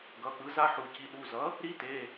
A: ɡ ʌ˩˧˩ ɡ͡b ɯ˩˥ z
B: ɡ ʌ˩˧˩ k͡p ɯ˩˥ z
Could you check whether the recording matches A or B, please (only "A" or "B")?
B